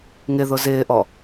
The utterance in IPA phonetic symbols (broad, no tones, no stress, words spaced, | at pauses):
ŋɪðʊ zɪːʔɔ